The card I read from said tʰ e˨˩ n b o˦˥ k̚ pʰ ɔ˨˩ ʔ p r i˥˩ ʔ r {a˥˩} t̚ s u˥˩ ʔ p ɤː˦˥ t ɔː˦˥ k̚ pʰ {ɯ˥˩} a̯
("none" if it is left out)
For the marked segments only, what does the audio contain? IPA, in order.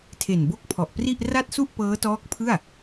a˥˩, ɯ˥˩

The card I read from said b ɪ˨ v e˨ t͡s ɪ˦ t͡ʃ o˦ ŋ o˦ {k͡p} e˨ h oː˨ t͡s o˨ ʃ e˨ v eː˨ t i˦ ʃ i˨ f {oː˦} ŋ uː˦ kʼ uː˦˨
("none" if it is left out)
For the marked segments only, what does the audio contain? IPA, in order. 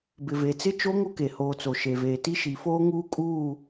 k, oː˦

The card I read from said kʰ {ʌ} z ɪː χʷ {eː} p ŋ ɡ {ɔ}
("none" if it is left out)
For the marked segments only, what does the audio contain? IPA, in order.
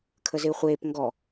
ə, eː, ɔ

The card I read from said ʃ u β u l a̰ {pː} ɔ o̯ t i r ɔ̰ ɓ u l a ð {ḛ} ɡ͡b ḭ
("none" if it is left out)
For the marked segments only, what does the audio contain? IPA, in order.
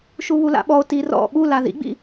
ɓ, ḭ

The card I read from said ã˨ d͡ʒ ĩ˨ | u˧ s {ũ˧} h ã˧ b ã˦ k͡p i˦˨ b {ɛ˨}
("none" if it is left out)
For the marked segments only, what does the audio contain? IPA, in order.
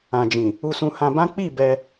ũ˧, ɛ˧

